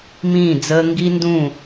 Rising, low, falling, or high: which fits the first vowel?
falling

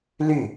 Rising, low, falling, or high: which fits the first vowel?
falling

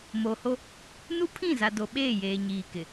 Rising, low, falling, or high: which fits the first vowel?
low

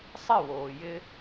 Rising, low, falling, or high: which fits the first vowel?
falling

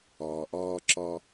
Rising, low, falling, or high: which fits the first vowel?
low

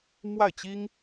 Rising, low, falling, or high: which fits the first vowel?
falling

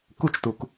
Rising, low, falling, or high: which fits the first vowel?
high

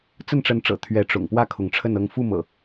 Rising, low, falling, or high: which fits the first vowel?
falling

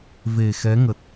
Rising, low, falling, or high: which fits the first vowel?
low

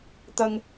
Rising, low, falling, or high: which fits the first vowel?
high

